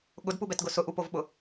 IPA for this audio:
ɠʊdpubɛtɡʊ sʊʔupovɓʊ

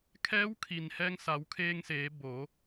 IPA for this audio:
kʰɛː˧˥wkʰi˩n hɛː˧ŋsa˩˧wkʰeː˧ŋseː˩˧ bo˩˧

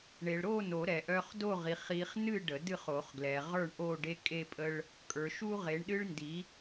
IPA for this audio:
ɳe˨ɭɾo˥˨no˨˩˦ ɾɛ˨ʔœ˦χ do˥˨ʁi˨χi˨˦χnɨ˥˨ ɖə˨˩˦dɨ˥˨χo˨˩˦χɡlɛ˨ ʁə˞˥˨ɳʔo˥˨ ɖe˦kʼe˦pʼə˦ɭ | kʼə˞˨ʃu˦ ʁe˨˦ɳɗɨ˦ɭndi˨˦

